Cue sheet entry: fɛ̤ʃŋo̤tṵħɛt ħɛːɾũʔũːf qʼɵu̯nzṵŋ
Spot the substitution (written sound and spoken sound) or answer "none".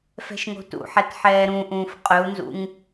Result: none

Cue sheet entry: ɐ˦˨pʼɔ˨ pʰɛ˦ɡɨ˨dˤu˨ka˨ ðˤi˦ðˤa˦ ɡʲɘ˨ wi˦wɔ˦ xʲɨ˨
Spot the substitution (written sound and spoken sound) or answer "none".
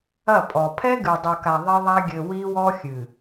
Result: none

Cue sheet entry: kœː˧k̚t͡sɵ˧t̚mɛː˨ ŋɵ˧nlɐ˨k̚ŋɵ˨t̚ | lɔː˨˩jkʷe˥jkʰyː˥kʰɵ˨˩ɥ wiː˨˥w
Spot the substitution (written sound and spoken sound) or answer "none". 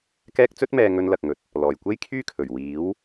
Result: œː˧ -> ɛː˧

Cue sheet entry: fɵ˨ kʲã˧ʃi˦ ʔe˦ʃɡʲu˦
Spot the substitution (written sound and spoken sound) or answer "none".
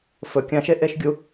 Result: i˦ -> e˦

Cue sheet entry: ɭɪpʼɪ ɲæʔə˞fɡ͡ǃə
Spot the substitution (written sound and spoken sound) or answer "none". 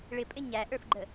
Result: none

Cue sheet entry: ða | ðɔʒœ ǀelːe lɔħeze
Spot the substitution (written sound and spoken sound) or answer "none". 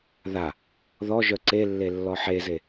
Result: l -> lː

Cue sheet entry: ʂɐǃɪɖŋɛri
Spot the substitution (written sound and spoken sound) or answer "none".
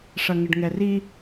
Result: ǃ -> ŋ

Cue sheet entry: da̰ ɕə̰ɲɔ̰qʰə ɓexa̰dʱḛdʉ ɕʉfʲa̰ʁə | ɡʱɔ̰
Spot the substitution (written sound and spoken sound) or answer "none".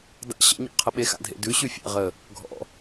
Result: none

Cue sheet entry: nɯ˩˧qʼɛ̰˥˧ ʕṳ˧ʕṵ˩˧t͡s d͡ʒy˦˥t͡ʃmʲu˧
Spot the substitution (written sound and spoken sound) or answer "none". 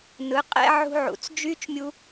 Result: none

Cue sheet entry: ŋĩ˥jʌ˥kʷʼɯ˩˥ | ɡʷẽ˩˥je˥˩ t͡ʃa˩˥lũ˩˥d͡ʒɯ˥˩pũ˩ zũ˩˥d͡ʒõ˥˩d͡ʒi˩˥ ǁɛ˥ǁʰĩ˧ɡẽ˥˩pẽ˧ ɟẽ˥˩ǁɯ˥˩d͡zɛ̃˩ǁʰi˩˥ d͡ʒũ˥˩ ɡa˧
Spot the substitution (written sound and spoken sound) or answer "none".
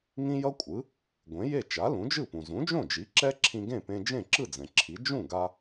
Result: ɟ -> d͡ʒ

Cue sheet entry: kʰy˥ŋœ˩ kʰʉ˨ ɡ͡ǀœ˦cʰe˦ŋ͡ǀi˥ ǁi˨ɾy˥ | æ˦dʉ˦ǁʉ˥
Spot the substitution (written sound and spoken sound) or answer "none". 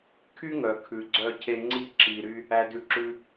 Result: none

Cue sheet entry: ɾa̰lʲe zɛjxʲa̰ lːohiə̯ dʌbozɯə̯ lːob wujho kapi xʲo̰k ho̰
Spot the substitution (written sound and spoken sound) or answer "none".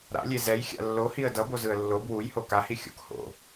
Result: p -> h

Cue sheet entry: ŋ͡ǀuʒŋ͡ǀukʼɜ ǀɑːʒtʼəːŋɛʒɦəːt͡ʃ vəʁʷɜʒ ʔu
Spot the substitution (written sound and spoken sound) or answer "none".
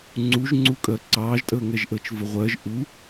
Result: ɦ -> ʔ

